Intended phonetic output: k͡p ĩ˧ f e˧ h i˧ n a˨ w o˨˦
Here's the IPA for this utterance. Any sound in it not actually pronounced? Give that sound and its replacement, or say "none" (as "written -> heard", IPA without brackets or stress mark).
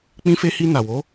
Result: none